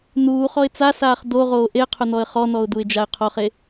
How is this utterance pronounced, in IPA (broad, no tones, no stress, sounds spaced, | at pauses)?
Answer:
n uː χ ɔ ɪ̯ t͡s a s aː χ d o ʁ oː ʔ e qʰ ʊ n ɔ ə̯ χ ɔ n ɔ ʊ̯ d u ɪ̯ d͡ʒ a ɪ̯ qʰ ɔ χ e